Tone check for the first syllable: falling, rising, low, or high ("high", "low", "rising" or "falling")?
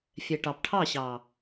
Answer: low